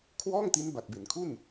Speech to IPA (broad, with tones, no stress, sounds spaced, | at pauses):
kʰ w ɔː˥˩ ŋ t i˦˥ n b a˨˩ t̚ b e˩˦ n kʰ u˥˩ n